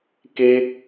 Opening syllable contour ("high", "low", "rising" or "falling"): high